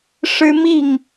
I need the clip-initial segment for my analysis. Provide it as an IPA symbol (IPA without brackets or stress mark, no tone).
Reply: ʂ